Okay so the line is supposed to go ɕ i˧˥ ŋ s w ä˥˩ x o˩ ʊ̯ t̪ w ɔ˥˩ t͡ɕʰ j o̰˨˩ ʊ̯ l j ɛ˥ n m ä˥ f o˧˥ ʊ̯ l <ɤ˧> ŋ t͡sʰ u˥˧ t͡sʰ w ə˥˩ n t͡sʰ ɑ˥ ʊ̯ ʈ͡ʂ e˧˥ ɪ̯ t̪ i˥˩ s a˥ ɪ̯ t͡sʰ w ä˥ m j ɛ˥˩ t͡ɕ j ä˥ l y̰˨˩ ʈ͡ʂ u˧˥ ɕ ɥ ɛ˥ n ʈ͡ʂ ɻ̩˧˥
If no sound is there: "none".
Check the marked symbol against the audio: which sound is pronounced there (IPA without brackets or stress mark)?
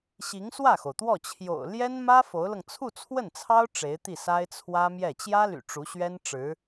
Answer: ɤ˧